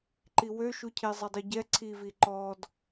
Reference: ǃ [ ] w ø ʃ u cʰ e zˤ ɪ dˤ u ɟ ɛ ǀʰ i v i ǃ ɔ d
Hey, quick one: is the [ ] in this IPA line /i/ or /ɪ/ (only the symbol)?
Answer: i